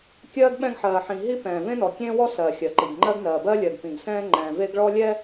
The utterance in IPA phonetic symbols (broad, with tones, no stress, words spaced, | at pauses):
kʲɜː˦ɡɓɛ̃˦ɡħɜː˨ħĩ˨ ɦi˦pɛ̃ː˨ vẽ˦nɔ˨kʲẽː˦wɔ˦ sɜː˨xʲɜ˨ ǃi˨ɡŋ͡ǃɜ˦ɡnɜː˨ bɜ˦lʲɜ˨ɡpĩ˨ɡsɛ̃ː˦ ŋ͡ǃɛ̃ː˨ve˦ɡɭɔ˦ lʲɛ˦